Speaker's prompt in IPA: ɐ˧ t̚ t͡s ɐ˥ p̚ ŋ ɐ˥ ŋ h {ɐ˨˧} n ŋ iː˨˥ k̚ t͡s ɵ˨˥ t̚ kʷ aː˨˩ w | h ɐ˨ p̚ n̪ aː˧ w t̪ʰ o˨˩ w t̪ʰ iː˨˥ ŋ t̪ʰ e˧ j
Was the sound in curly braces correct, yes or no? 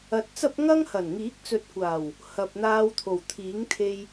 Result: no